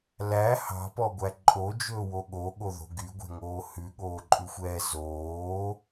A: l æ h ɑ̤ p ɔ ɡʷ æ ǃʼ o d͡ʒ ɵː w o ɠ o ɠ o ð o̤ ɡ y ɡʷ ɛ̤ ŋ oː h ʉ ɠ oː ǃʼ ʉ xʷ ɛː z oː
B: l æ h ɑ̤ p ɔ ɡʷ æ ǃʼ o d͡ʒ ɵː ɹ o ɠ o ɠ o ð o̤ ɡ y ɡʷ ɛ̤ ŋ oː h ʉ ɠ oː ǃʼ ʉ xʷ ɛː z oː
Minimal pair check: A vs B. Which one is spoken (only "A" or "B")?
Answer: A